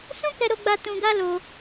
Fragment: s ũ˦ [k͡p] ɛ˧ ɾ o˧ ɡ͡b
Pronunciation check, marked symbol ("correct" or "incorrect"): incorrect